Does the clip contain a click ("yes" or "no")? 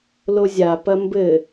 no